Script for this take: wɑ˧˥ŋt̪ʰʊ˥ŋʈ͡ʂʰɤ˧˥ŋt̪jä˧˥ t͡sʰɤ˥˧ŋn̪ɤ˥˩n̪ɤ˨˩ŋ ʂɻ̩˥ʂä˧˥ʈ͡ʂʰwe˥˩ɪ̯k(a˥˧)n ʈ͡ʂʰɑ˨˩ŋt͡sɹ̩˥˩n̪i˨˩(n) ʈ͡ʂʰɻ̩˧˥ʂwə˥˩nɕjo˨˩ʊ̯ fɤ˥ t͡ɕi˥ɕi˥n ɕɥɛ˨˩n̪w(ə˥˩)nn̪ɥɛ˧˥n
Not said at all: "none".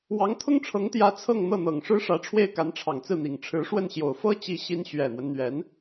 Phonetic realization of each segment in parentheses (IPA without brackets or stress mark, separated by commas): a˧˥, ŋ, ə˦